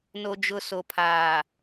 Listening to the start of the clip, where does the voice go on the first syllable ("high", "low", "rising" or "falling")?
low